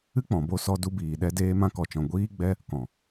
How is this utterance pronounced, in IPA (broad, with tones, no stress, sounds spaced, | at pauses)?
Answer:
ɨ˦ k͡p ɔ̃˨ b o˧ s ɔ˧ d u˧ b iː˨ ɗ ɛ˧ d eː˧ m ã˧ k ɔ˨ t͡ʃ ɔ̃˨ ɡʷ iː˧ ɡ͡b ɛ˧ | k ɔ̃˨